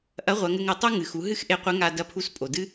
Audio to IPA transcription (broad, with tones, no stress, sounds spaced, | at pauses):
ʔ ɐ˧˥ ʁʷ ɐ˩˧ ŋ ɘ˧ ŋ ɘ˩˧ tˤ u˥ ŋ ɨ˩ x u˩˧ ɦ ɨ˥ x ʔ e˧ qʷ ɘ˧˥ ŋ a˧ d ɐ˧ pʰ u˧˥ s pʼ o˩ d ɨ˥